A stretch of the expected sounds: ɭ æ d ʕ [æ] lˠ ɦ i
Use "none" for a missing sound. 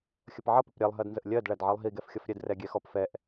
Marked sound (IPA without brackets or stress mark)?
ɜ